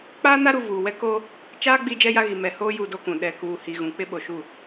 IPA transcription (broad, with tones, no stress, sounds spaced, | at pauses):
k͡p aː˦ n a˦ ɾ u˨ v uː˨ w ɛ˦ k oː˦ | t͡ʃ aː˦ ɡ͡b iː˦ d͡ʒ ɛ˦ j a˦ ɣ i˨ m ɛ˨ h oː˦ j u˦ d o˦ k ũ˨ ɗ ɛ˨ k uː˨ h i˨ ɣ ũ˨ k͡p ɪ˦ ɓ o˨ ʃ u˦˨